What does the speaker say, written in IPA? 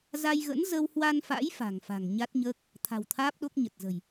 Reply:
z a˧ j ɣ ə̰˧˥ n z ə˧ w h w a˧ n f a̰˧˥ j f a̤˨˩ ŋ f a̤˨˩ ŋ ɲ a˦˥ t̚ ɲ əː˦˥ k̚ | t̪ʰ a̤˨˩ w t̪ʰ aː˦˥ p̚ ɗ o˦˥ k̚ ɲ ə˨˩ t̚ z ə̤˨˩ j

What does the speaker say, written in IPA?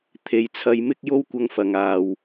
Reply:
t̪ʰ e˨˧ j t͡sʰ ɐ˧ j m ɪ˥ k̚ j o˥ w kʷ ɐ˧ ŋ f ɐ˨ ŋ aː˨ w

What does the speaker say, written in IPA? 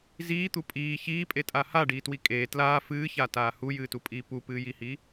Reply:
z iː t̪ u pʼ iː ç iː pʼ e tʼ a h a ɖ iː t w i kʼ eː t l aː f ɨː ç a t aː h u j ɨː t u pʼ iː p u p ɨː j i h i

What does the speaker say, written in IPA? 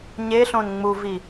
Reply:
ɲ e ɬ õ n ŋ͡m u v i

